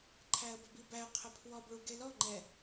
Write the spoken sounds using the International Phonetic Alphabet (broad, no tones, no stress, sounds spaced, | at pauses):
ǃʰ æ ə̯ b ə b i b æ ə̯ qʰ ə pʰ w ɔ b ɭ u ɡ e l ɔ ŋ͡ǃ ɛ